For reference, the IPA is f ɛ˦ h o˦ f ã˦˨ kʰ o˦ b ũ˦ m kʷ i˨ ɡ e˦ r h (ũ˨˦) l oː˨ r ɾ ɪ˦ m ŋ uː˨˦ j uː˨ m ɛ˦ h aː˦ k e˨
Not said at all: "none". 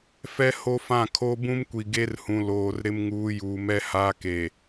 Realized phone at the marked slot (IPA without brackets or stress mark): ũ˨